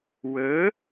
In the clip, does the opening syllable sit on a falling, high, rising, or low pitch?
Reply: rising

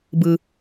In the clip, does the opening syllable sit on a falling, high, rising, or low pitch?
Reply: low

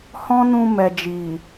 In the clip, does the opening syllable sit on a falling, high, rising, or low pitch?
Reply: high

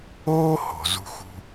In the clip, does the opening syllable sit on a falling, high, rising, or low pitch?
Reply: high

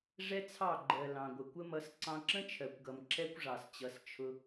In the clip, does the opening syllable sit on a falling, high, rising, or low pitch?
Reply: high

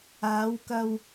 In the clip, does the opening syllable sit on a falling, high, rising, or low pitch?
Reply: rising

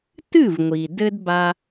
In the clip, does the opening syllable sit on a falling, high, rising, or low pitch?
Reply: falling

